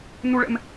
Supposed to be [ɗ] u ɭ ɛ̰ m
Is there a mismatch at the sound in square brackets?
yes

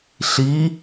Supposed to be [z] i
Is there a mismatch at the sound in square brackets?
yes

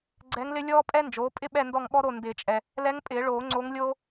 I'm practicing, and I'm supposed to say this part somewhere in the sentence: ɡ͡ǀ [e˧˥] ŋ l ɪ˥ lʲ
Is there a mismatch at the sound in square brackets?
yes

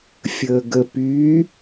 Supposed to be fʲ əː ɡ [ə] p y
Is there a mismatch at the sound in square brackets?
no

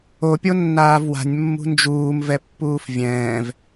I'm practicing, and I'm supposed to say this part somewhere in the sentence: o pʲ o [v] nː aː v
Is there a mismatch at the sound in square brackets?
yes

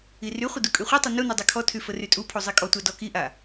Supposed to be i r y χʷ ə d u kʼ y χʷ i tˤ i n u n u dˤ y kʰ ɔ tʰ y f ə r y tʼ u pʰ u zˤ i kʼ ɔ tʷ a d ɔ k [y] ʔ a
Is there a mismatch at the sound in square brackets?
yes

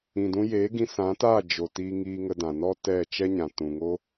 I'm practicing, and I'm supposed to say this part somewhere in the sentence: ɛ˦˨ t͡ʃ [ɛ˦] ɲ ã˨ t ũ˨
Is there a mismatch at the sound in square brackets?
no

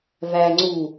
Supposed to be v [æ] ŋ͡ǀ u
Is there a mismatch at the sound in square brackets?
no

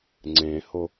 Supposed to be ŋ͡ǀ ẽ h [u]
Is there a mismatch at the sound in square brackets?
yes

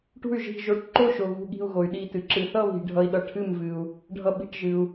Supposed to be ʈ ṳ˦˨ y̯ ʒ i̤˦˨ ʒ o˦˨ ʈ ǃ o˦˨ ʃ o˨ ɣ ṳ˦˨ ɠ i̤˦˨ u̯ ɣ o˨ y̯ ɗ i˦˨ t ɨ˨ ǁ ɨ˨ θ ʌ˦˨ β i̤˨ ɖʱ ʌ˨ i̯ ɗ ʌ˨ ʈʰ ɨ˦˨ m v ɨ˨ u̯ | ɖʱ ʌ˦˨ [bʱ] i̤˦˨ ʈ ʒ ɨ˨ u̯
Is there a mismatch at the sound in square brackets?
yes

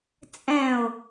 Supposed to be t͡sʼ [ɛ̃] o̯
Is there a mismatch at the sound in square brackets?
no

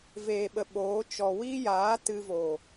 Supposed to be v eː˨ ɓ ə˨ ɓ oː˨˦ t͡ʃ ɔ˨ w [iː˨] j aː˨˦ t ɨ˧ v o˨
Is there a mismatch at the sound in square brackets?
yes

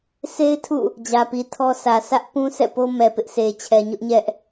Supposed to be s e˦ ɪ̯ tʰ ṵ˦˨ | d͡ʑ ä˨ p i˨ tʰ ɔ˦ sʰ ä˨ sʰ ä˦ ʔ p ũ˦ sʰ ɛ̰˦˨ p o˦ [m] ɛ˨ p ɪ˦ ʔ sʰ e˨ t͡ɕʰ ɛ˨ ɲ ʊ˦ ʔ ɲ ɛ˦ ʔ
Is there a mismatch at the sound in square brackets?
no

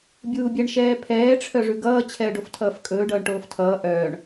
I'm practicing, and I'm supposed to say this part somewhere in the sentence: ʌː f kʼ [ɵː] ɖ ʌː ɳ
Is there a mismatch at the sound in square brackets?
no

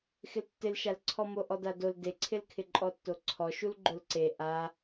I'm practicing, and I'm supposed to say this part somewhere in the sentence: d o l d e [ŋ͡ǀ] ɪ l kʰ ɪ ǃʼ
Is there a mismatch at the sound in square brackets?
yes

